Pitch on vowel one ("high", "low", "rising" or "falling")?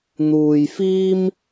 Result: low